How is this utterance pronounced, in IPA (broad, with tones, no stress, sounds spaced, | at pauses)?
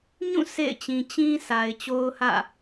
ɲ ũ˦˨ sʰ ḛ˦˨ ɪ̯ t͡ɕ ĩ˨ t͡ɕ ĩ˦ sʰ a˨ ɪ̯ t͡ɕ o˦ ʊ̯ h ä̰˦˨